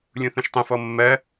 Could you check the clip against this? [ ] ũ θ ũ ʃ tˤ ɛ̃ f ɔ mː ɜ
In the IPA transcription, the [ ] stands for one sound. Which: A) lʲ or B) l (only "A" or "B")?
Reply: A